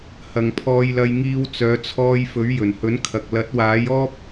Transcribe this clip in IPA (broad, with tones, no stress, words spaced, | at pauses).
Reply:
hɐ˨ŋ pʰɔː˧jlɐ˧jŋiː˧w t͡sœː˨˧t͡sʰɔː˧j fɵ˨˥ɥjɵ˨˩nhɵ˨˥nkʰɐ˨k̚ lɐ˨˥t̚waː˨˥jɔː˥p̚